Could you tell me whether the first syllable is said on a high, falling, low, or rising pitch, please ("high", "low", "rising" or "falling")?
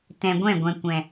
low